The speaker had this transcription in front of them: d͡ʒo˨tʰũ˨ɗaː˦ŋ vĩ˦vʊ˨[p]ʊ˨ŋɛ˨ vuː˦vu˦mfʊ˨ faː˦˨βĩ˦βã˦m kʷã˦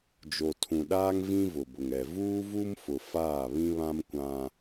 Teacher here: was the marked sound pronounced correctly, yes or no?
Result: no